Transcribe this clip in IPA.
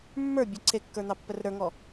mːə˞ bʲə ǀʰekːə˞ n̪ɑpːərɾə˞ŋɔ

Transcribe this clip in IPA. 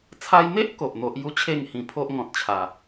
t͡sʰa˧jn̪e˦ʔ ko˨ʔn̪o˦ʔ ju˦t͡ɕʰe˥˧ŋhĩ˧pʰo˦ʔ ŋɔ̃˨t̚t͡ɕʰa˨˩

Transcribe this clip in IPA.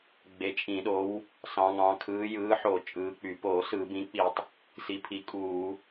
ɡ͡be˨˦t͡ʃʼĩ˧˩˧ɗo˨˦w | sɑ̃˨˦ŋɑ̃˨˦ kʰɯː˨˦jɯː˨˦ħo˧˩˧ t͡ʃʼɯː˨˦k͡py˧˩˧ poː˧˩˧sɯ˧˩˧ bĩ˨˦k͡pi˧˩˧tˤ | si˨˦pʰi˨˦kʼuː˧˩˧

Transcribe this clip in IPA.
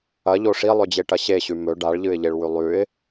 ɐʎo ʂilˠɵd͡ʑeʈɐ ɕeɕʉ mɵ ɖaɭʎɨɪ̯ʎeɭwʉ lˠʉɪ̯

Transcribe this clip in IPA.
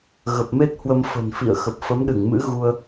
ɣə˨˩p̚me˦˥t̚hwə˧m fə̤˨˩nfḭ˧˨ə̯ xə˨˩p̚ fə˨˦mɗɨ˧˩ŋmɨ̰˧˥ ɣu˧ə̯

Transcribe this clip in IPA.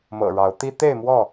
mɤ̰˨˩ɻɑ˨˦ʊ̯t̪i˦ t̪e˥˨ɪ̯mwɔ˥˨

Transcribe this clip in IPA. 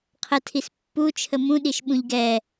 qʰətʰis pːut͡ʃʰə mũɗiʃ ɓũʎɡɛ

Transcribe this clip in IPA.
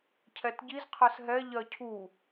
cʰɛtɟiz qʰɜsɦɛ ʎɜcʰu

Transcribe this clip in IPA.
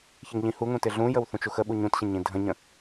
çɪŋʎĩhuŋũ tɪɮũjəw θũt͡ʃuxəɓu ɲũtɕə̃ ɲĩdʱə̃ɲə̃

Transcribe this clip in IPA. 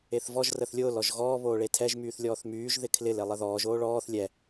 eθvɔʒ rəθlʲʊːl ɔʒɣɔː βoːɭetʰɛʒ myːθlʲɔːθmyːʒ ðɪkʰlɪl elˠəðɔːʒ oːɭɔːθ lʲɛ

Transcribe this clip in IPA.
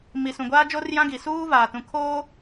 mi˨sũ˨ɡʷaː˦d͡ʒo˦r jã˦ɡi˨ suː˦ vaː˨tũ˨kʰoː˦

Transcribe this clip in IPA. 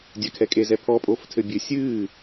dʲakʰɛkʼezɛ pʰɔpʼoːf tʰɘbʲɨ sʲɨː

